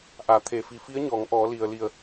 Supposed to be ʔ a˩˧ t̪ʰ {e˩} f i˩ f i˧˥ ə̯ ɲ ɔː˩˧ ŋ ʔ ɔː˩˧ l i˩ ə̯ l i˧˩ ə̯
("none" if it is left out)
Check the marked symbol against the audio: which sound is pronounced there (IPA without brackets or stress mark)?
e˩